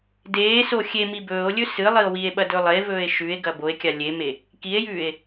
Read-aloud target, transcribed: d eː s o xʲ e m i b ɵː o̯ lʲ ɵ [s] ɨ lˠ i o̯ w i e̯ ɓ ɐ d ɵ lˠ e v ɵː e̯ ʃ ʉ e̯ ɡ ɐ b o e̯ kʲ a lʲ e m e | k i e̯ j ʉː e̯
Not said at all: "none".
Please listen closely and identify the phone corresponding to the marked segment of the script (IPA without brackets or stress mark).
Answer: s